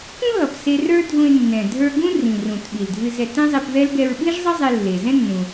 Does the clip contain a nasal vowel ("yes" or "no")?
yes